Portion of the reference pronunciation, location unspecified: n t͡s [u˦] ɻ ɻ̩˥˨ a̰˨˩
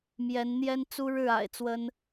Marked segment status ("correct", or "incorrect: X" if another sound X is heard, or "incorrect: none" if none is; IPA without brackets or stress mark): correct